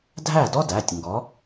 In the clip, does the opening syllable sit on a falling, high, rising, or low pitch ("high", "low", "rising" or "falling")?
falling